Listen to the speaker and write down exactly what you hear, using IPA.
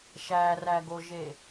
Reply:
ʃ æ r æ ɡ o ʒ e

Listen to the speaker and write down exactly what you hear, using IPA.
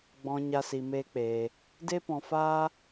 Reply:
ɡ͡b ɔ̃˧ ɲ a˦ s i˧ m eː˦ k͡p eː˧ | d e˦ p ɔ̃˧ f aː˦

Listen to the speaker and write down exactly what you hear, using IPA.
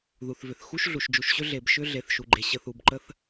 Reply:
ð u˩ θ v ʏ˩ θ x u˥ ʃ ɮ u˩ ʃ d͡ʒ u˩ ʃ ɕ ʏ˥ ɮ e˩ b ʃ ʏ˥ ɮ e˩ θ ʃ u˩ ɡ͡ǃ e˩ ɕ ə˩ θ u˩ b ǃ ə˥ θ

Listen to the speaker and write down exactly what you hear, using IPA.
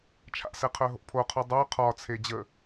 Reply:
t͡ʃʰ a̰ s ɛ qʰ œ ɦ o̰ pʰ o qʰ o dˤ œ qʰ ɒ t͡sʰ e d͡ʑ ə

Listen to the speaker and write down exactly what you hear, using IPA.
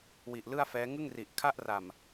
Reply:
w i˨˩ ʔ l ɯ˥˩ a̯ f ɛː˦˥ ŋ ɯ˥˩ ŋ r i˨˩ ʔ kʰ a˥˩ ʔ r a˨˩ m

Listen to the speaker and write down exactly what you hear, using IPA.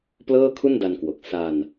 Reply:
p l ɤː˥˩ kʰ u˥˩ n d a˧ n k w o˨˩ k̚ s a˧ n

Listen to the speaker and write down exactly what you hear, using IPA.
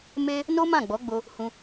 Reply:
m e˦ | n o˦ m ã˦˨ ɡ͡b ɔ˨˦ ɡ͡b o˧ | h ũ˧

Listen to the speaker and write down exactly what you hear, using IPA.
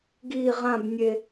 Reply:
ɡ i ʁ ã b nʲ e

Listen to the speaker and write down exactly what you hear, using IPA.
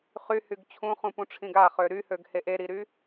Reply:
χ y h y ɡ t͡ɕʰ ũ χ ũ p ũ ʈ͡ʂʰ ĩ ɡ a χ ø ɾ y h ø ɡ h e ʔ e ɾ i ɾ y

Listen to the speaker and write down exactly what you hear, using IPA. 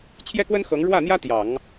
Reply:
t͡ɕʰ j ɛ˥ k w ə˥ n x ɤ˧˥ ŋ ɻ w ä˥˩ n̪ j ä˥ t̪ j ɑ˨˩˦ ŋ

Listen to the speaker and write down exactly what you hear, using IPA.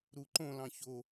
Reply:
ɾ u ǃ õ l ɑ̃ ç o

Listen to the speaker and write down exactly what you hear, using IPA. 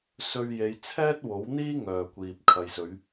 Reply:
s ɵ˧ ɥ j e˨˧ j t͡sʰ ɛː˥ t̚ w o˨˥ w n̪ iː˥ ŋ œː˨ kʷ iː˨ p̚ kʰ ɐ˨ j s ɵ˨˧ ɥ

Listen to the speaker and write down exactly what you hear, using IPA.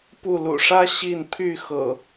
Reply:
p u˥˨ l ṵ˨˩ ʂ ä˦ ɕ i˥˨ n pʰ y˥˨ x ɤ̰˨˩

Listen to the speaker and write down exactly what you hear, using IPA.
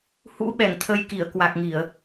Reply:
h ṵ˧˥ ɓ ɛ˧˩ ŋ t̪ʰ ə˧ j k i˧˩ ə̯ k w a˨˩ k̚ ŋ i˧˩˨ ə̯

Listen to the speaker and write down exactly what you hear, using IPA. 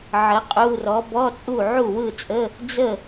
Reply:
ʕ ə˨˥ qʼ u˧˥˧ r ɔ˨˥ b ɔ˧˥˧ t͡sʼ u˥˩ ʕ u˥˩ w ɯ˥˩ t͡sʼ ə˧˥˧ | d͡z ə˥˩

